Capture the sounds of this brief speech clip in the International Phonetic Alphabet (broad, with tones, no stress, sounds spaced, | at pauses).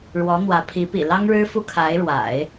ɻ w ɔ˧˥ n̪ w ä˧˥ pʰ i˧˥ p ḭ˨˩ l ɑ˥ ŋ ɻ ɻ̩˥ f u˥ kʰ a˧˥ ɪ̯ ɻ w a̰˨˩˦ ɪ̯